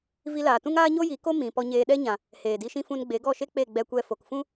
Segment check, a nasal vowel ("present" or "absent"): present